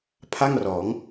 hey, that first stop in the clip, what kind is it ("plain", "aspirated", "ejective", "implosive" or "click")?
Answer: aspirated